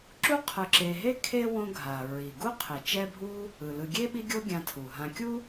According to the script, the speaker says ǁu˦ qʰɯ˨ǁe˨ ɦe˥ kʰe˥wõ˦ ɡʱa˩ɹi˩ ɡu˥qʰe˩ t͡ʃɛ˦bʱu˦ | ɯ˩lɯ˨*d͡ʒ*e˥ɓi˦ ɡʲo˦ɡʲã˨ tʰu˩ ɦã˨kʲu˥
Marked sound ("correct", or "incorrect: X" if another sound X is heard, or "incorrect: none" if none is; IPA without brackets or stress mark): incorrect: ɡʲ